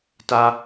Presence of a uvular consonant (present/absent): absent